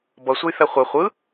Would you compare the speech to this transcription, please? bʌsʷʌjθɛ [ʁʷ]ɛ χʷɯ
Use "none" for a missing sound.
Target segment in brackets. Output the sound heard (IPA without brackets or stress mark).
χʷ